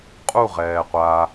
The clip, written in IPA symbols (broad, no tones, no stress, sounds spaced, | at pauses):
qʼ u ʁ ɛː qʷ a